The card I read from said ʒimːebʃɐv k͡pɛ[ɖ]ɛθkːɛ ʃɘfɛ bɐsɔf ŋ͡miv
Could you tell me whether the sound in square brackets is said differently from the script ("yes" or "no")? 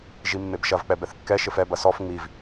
yes